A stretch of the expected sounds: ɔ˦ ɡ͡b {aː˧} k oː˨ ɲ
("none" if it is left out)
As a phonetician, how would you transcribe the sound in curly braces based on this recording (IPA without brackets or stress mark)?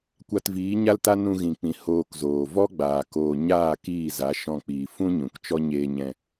aː˨